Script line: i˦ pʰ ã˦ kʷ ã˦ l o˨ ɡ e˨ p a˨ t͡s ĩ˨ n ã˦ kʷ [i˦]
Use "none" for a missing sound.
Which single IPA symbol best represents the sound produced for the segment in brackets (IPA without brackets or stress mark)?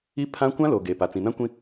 ĩ˦